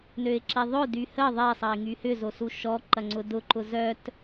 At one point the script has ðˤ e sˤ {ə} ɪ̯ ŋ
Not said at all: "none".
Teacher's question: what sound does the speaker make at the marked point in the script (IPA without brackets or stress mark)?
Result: ə